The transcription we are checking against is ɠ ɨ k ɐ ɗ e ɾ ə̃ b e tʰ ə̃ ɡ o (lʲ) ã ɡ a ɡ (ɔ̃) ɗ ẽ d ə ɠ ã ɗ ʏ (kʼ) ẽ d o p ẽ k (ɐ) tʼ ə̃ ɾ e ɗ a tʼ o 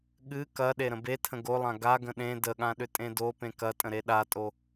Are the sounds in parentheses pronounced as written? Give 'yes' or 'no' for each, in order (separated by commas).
no, no, no, yes